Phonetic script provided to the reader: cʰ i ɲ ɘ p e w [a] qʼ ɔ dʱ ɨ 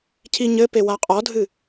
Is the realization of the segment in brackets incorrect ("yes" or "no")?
no